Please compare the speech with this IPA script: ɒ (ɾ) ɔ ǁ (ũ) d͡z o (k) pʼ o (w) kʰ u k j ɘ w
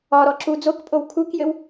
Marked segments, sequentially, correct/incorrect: correct, incorrect: u, correct, correct

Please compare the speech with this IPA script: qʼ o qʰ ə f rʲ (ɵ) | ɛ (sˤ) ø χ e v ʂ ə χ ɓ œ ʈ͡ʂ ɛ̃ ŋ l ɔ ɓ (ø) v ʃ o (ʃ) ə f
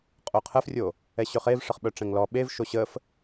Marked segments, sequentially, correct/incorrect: incorrect: o, incorrect: ɕ, incorrect: e, incorrect: ɕ

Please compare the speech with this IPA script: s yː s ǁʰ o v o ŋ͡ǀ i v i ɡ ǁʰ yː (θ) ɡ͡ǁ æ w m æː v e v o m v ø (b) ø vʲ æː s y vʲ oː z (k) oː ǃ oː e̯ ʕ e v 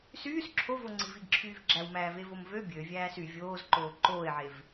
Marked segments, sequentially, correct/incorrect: incorrect: v, incorrect: bʲ, incorrect: ǃ

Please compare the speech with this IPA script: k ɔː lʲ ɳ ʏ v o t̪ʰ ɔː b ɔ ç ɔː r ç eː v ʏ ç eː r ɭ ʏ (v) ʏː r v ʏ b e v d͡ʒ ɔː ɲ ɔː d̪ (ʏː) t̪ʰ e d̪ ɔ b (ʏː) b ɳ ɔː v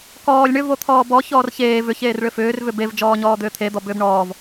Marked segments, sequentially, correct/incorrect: incorrect: f, correct, correct

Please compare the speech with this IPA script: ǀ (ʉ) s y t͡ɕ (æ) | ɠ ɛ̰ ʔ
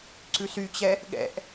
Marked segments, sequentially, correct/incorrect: correct, incorrect: ɛ

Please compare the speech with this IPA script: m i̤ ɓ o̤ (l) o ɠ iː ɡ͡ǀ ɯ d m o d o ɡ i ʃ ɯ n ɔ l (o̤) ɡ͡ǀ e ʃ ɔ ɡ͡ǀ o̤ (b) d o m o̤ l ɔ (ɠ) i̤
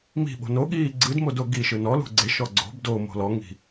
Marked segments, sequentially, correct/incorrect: incorrect: n, incorrect: ṳ, correct, incorrect: ŋ

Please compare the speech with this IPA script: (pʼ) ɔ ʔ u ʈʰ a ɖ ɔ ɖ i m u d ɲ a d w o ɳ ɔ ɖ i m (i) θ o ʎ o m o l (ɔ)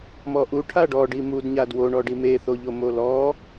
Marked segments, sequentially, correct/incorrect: incorrect: m, incorrect: e, correct

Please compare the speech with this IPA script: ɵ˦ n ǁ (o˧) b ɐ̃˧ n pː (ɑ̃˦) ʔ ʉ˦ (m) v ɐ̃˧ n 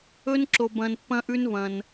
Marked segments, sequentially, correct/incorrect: correct, incorrect: ɐ̃˦, incorrect: n

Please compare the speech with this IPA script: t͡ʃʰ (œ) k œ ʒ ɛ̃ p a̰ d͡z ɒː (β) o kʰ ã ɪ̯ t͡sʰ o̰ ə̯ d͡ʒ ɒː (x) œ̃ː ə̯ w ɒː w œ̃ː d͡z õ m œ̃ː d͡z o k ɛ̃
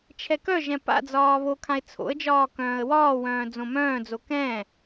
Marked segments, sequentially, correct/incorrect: incorrect: ɛ, correct, incorrect: k

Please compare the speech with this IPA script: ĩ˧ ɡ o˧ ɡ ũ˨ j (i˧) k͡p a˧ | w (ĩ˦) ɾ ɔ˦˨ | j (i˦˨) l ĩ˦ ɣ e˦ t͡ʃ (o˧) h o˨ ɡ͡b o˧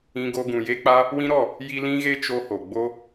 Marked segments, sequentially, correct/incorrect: incorrect: e˧, correct, incorrect: i˧, correct

